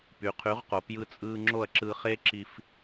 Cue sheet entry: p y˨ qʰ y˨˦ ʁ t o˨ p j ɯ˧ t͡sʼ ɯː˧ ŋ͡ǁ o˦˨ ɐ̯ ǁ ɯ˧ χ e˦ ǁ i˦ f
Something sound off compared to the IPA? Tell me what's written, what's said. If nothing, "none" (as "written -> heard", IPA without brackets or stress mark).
t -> q